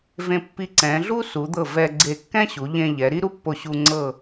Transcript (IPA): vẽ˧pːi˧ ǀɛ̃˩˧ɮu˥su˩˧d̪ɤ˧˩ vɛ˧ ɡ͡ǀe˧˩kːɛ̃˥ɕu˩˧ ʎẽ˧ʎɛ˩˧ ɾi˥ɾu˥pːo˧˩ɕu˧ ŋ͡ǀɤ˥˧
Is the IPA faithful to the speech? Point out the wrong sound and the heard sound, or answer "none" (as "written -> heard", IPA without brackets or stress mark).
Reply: none